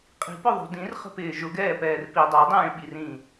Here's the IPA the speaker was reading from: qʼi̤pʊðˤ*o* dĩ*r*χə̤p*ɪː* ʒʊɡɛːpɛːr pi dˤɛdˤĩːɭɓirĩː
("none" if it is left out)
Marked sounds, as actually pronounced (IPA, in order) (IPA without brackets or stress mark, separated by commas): o̤, r, ɪː